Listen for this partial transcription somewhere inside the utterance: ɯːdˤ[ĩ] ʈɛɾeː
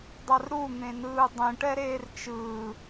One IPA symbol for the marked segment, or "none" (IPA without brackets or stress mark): ĩ